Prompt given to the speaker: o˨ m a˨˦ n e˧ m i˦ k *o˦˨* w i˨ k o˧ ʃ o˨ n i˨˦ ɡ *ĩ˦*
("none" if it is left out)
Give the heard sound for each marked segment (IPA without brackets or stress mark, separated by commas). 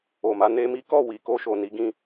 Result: ɔ˦˨, ĩ˦